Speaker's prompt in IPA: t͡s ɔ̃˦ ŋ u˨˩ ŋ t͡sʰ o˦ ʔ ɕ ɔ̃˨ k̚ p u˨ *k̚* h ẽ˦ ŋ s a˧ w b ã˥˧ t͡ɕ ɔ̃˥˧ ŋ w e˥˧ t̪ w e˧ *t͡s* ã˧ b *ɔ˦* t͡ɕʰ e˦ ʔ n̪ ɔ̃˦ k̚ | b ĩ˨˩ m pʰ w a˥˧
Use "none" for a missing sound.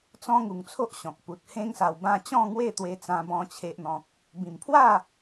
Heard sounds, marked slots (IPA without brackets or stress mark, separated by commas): t̚, t͡s, ɔ̃˦